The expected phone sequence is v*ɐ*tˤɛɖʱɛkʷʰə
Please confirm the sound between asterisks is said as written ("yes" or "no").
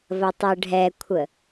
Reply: yes